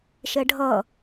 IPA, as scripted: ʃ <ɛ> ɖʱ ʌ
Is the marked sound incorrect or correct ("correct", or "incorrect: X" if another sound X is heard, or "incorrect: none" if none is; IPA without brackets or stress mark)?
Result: correct